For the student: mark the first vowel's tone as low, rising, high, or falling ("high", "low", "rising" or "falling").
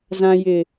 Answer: low